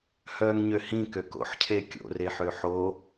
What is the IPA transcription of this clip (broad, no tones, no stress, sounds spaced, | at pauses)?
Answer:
h œː ŋ ɲ ø h ĩ k ø k o̰ ħ cʰ e kʲ o̰ r e ħ ø ħ o